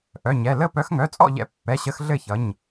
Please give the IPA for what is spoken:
ʔ œ˩˧˩ ɲ ɛ˩˧˩ l ə˥˨ p œ˨˦ x ŋ œ˩˧˩ t͡sʼ ɔ̰˥˨ ʎ ɛ̰˦ pː ɛ˩˧˩ ɕ ə˨˦ x ɮ ɘ˥˨ ç ʌ˩˧˩ ɲ

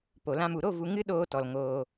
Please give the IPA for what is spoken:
p o˨ l ã˧ m u˨ ɾ o˦˨ v u˨ ŋ ɨ˦ ɗ oː˧ t ɔ˨ l ŋ oː˧

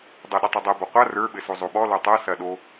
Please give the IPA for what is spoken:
dˤ ɤ ɗ ə tˤ e dˤ e b ɔ qʷ a r ə˞ ɓ ɘ s o zˤ o ɓ ɔ l o tˤ ɤ s ɐ ɗ o

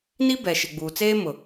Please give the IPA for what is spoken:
n i˦ b ɛ˨ ʃ ɪ˨ ɡ͡b uː˨ t͡s eː˦ m ʊ˨

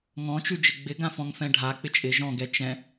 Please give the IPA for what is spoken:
ŋ ɔ̃ t͡ʃ ʉ d͡ʒ ɪ ɡ͡b ɪ ɡ ã f ɔ̃ ŋ f ɛ̃ ɖʱ a k͡p ɪ t͡ʃʼ ɪ ʒ ɔ̃ ɡ ɛ t͡ʃ ɛ̃

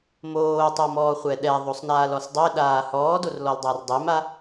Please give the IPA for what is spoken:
m oː tˤ o m ɔː χʷ ɛ ɗ ɛ ðˤ o sˤ n aː l ɔ s dˤ e ɗ aː h ɔː d o r l ɔ l dˤ a r dˤ e m a

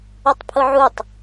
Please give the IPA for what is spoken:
ʊ tˤ pʰ ʊ ʕ u tˤ

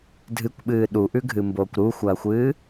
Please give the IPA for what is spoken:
dʱ ɨ kʷ ɓ ɨː ɗ u ʔ ʉ ɡʱ ɨ m b oː kʷ ɾ u xʷ ɐː xʷ ɨː

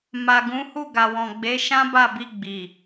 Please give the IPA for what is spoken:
m a˨ ɡ ũ˨˦ h u˦˨ ɡ a˨ w ɔ̃˨ ɡ͡b e˨˦ ʃ ã˦ b a˦˨ b i˧ ɡ͡b i˨

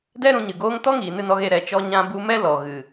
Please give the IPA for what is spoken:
d ɛ˦ ɾ ũ˧ ɲ ɨ˨ ɡ oː˦ ŋ t ɔ˦ ŋ iː˨ n ɨ˧ n ɔ˧ ɣ e˧ ɾ ɛ˨ t͡ʃ ɔ˧ ɲ ã˧ b u˧ m ɛ˦ l ɔ˨ ɣ ɨ˨

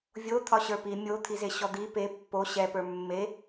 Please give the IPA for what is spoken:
vʲ o t̪ʰ ɒ ɕ ə˞ p i mʲ o t̪ʰ i z e ɕ ɔ d̪ i p e pː o ɕ ɛ p ə˞ mː e

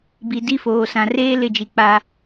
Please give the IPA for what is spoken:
b i˨ d i˦ f oː˨ s ã˨ r eː˦ l ɪ˦˨ d͡ʒ i˨ k͡p a˦

